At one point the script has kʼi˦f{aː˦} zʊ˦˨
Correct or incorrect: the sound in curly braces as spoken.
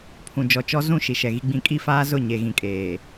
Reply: correct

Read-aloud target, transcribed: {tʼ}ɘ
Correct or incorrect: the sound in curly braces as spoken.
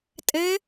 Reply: correct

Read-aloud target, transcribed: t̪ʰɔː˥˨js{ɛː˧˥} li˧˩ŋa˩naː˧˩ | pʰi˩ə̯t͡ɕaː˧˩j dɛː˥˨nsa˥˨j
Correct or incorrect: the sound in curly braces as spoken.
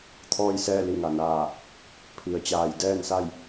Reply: incorrect: ɛː˥˨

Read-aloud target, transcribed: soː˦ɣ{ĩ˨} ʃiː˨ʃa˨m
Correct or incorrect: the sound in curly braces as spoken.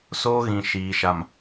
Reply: correct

